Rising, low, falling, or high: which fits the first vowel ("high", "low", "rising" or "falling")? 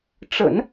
low